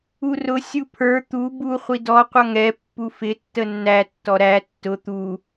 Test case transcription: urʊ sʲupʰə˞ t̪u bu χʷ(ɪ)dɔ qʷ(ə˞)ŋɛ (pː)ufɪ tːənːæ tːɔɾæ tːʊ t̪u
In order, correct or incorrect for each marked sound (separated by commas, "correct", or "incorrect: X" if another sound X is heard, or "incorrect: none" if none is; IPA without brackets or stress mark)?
incorrect: i, incorrect: ʌ, correct